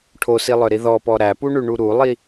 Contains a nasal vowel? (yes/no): no